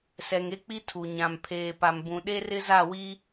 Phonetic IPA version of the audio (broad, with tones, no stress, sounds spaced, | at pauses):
s ɛ˨ ŋ e˦ k͡p i˦ tʰ u˨ ɲ ã˨ m pʰ eː˨ p a˨ m b ũ˨ ɗ e˦ r ɪ˦ z a˦˨ w i˦